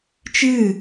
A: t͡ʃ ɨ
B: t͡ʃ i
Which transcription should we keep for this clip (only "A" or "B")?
A